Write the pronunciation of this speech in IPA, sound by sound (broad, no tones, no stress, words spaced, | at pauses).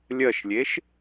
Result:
lʲɜʃlʲeʃ